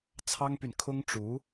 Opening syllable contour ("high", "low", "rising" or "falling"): high